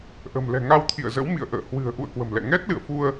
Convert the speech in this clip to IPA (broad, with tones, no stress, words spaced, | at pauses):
ʔə̤˨˩mlɛ̤˨˩ ŋa˧wt̪ʰḭ˧˨ə̯zə̰˧˥w mḭ˧˨ə̯ʔə̰ː˧˨ hwɨ̤˨˩ə̯ ʔṵ˧˨ə̯kwə̤˨˩mlɛ̰˧˨ ŋɛ˦˥t̚lɨ̰˧˨ə̯fu˧ə̯